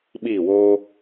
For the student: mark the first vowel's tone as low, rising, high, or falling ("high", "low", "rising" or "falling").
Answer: falling